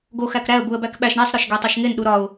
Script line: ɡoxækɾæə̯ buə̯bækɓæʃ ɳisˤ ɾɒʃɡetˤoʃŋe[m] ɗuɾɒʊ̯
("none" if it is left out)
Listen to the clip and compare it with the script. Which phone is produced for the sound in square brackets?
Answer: n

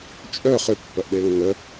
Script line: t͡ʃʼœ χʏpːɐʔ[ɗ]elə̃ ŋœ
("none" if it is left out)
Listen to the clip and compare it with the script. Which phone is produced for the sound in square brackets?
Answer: ɗ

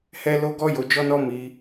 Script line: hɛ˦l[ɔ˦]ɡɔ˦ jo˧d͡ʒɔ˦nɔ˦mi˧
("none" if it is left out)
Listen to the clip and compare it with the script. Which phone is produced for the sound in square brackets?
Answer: o˦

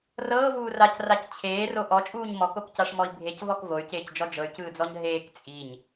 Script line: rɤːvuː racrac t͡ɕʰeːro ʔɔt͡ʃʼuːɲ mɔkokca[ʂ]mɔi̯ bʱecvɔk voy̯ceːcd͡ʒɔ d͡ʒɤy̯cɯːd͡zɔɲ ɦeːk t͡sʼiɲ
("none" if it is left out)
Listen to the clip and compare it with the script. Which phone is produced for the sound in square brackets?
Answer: ʂ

